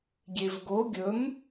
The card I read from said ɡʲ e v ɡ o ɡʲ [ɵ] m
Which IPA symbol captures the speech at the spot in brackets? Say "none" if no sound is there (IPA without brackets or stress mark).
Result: ɵ